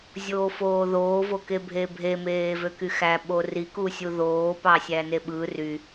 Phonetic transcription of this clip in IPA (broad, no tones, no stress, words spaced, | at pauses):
zʲoːfoːðoː vokebʱebʱe meːvøkyxæ ɓori kusʲuðoː pɑsʲæneɓɯ ry